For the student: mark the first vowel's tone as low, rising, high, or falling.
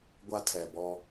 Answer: high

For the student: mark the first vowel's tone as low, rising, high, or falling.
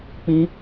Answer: high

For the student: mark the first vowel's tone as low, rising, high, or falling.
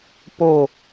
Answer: falling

